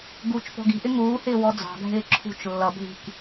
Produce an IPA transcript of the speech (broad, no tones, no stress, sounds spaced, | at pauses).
ɡ u t͡ʃ p ɔ̤ ɡ i̤ ʔ ɪ ŋ uː h ɪː w ɔ d͡z ɑ̤ ɡʱ ɪː ǁʰ ṳ t͡ʃ lː ʌ bʱ i̤ k